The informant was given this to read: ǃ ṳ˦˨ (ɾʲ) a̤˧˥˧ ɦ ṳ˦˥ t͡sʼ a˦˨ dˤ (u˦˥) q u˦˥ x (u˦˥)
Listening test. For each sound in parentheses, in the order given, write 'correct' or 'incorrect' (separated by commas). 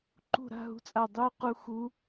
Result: incorrect, correct, correct